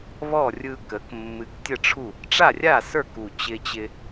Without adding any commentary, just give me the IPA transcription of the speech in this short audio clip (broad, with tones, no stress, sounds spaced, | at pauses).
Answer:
β ɔ˥˩ rʲ ɯ˧ k ə˩˥ k mː ɨ˨˩ k tʲ ə˥˩ ʈ͡ʂʰ u˥˩ | ʈ͡ʂ a˥˩ rʲ a˥˩ s ə˞˥˩ k u˨˩ t͡ɕ ɪ˧ t͡ɕ ɪ˧